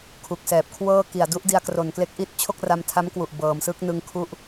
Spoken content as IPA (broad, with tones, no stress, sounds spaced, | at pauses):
kʰ u˨˩ k̚ s ɛː˨˩ p̚ kʰ w ɤː˥˩ k i˨˩ a̯ d u˦˥ ʔ d i˧ a̯ k r o˨˩ n k l e˦˥ k̚ ʔ i˦˥ t̚ t͡ɕʰ o˥˩ k̚ r a˧ m tʰ a˦˥ m k w u˨˩ ʔ b ɤː˩˦ m s ɯ˦˥ k̚ n ɯ˧ ŋ kʰ u˦˥ ʔ